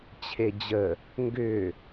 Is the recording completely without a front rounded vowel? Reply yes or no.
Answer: no